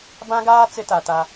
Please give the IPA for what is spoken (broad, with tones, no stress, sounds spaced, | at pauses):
b ã˦ ɡ aː˦ t͡s ɪ˦ t a˨ t a˦